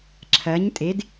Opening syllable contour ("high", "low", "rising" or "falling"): rising